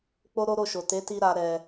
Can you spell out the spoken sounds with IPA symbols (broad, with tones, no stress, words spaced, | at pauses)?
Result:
k͡po˦ɾo˦ɾo˦˨ʃo˨ te˨˦ti˧ɾa˨ ɾɛ˨